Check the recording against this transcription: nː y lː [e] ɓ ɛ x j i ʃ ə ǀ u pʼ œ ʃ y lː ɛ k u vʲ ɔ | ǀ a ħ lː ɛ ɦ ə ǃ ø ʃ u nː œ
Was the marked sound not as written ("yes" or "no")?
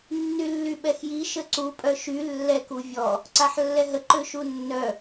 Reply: yes